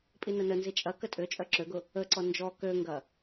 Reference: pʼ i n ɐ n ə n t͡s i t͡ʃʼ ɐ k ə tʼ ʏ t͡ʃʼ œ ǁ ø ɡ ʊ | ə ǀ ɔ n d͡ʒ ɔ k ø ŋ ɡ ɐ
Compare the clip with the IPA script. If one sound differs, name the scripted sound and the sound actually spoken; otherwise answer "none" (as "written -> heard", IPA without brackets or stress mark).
t͡s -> z